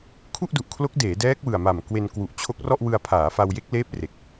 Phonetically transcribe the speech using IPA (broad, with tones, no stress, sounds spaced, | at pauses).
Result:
kʰ u˥˩ ʔ d u˨˩ ʔ kʰ l o˦˥ k̚ d eː˩˦ d ɛː˦˥ k̚ w ɯ˨˩ a̯ m a˨˩ m k w e˧ n k w u˨˩ ʔ t͡ɕʰ o˦˥ k̚ r ɔ˥˩ ʔ w ɯ˧ a̯ pʰ aː˩˦ f a˧ w j e˦˥ k̚ l eː˦˥ p̚ r e˨˩ k̚